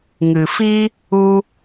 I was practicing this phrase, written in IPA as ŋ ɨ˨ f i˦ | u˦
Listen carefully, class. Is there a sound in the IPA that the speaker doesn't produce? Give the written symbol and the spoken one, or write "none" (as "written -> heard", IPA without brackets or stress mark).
none